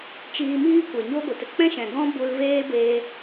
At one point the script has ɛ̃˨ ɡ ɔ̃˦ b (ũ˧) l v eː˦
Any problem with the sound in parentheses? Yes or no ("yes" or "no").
yes